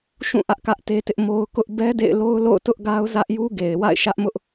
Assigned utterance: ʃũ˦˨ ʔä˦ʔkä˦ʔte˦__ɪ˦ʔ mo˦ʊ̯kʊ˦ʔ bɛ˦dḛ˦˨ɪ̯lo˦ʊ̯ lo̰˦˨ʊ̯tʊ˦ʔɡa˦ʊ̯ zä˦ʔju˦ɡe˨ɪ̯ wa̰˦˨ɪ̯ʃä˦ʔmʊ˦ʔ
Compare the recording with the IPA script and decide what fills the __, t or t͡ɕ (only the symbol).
t